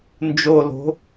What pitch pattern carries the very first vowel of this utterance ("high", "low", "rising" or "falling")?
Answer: low